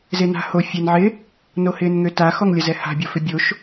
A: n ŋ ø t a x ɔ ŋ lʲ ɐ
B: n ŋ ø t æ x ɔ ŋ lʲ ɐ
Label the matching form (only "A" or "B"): A